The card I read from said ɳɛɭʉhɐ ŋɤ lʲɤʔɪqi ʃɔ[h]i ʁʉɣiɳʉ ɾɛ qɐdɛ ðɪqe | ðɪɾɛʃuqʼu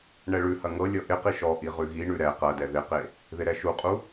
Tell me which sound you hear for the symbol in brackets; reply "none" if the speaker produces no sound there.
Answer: ʔ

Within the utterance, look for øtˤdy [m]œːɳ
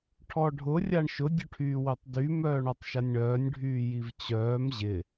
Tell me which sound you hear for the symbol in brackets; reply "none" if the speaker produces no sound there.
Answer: m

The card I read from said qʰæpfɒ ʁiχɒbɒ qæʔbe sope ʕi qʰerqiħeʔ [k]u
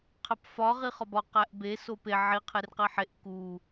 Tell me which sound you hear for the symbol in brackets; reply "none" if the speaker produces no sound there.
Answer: k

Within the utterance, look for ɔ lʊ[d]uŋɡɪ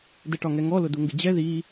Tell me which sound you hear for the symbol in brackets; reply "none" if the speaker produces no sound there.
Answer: d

